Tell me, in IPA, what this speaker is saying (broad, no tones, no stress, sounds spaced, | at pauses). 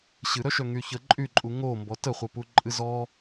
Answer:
ɕ ɨ ɾ œ ʃ œ ŋ y ç ə ǃʼ y ǃʼ u ŋ o m b ɔ t ə χʷ ə p u ǃʼ ɨ z ɔ